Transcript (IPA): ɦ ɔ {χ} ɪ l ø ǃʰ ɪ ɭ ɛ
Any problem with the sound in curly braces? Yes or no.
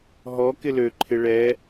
yes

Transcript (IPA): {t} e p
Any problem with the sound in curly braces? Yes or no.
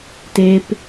no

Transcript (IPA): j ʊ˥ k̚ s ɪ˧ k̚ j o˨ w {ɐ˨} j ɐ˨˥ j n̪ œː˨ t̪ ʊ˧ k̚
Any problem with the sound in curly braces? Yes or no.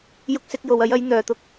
yes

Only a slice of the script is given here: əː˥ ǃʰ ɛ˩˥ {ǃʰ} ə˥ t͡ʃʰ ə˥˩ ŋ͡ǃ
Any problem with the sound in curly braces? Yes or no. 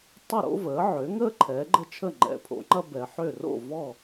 yes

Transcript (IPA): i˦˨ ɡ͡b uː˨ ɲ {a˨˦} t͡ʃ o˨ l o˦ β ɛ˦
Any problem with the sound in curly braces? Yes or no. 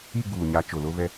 no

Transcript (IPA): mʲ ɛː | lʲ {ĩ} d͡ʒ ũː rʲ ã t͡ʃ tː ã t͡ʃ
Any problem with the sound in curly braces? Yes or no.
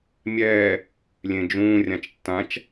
yes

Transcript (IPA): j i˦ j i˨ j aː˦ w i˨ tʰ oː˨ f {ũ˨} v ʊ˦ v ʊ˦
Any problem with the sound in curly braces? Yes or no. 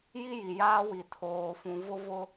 no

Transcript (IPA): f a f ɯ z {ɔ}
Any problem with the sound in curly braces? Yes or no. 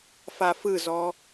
no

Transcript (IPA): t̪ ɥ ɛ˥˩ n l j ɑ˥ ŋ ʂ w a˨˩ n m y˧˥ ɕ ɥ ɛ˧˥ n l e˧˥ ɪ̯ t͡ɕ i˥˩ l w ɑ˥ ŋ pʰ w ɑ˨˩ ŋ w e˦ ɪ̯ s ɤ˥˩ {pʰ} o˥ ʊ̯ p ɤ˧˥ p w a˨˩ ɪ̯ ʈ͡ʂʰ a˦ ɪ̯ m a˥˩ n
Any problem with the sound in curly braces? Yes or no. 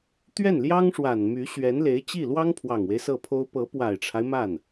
no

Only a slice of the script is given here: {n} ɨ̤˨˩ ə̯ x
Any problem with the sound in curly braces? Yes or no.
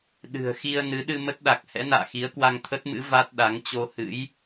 yes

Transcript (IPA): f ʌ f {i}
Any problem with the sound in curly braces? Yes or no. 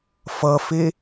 yes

